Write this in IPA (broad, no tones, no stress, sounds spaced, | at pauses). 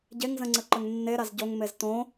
ɟ e ŋ z ə̃ ŋ͡ǀ ə ǃ ə ŋ nː e ɾ a z ɟ o ŋ m e z t õ